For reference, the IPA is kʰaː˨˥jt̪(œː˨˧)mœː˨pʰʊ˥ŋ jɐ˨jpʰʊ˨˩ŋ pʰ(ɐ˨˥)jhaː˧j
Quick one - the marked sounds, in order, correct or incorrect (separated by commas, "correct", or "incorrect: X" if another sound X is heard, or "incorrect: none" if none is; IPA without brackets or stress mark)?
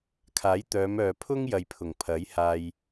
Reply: correct, correct